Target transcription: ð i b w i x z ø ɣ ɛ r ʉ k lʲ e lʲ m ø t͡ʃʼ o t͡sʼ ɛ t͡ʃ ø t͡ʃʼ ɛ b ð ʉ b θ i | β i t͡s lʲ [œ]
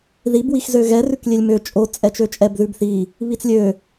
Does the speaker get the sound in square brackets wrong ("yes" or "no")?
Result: yes